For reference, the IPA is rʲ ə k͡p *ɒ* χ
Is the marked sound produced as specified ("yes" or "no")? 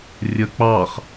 no